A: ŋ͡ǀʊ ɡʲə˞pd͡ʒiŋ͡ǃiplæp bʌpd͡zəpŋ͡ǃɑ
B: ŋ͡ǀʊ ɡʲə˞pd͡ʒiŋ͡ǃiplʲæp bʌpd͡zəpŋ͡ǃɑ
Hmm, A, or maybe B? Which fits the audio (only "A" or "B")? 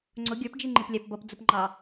B